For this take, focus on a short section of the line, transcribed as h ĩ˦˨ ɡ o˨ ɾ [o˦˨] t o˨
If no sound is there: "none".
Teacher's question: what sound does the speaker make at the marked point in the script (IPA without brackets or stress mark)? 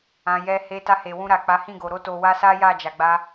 o˧